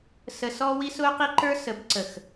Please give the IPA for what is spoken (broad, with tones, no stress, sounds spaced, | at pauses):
s ə˧ s ɔ˦ w i˦ s ʊː˦ q i˦ ǃ ə˞˦ s ə˨˦ b ǀ ə˨ x